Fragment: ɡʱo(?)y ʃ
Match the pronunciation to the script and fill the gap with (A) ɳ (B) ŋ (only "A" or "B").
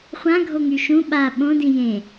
B